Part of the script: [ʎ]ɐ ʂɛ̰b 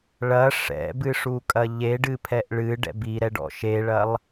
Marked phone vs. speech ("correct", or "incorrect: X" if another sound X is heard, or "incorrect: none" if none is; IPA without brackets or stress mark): incorrect: ɭ